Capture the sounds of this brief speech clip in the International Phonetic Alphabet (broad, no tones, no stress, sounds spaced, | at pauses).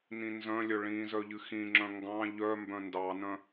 n ĩ n z œ̃ lʲ œ ɭ ĩ z œ ʎ ɨ x ĩ ŋ͡ǁ œ̃ ŋ ɡ ɑ̃ ʎ œ m b œ̃ n d ɑ n œ̃